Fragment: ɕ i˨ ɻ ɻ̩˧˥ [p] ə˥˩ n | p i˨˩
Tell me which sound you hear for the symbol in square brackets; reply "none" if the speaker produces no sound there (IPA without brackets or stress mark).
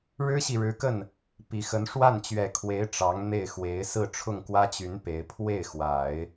k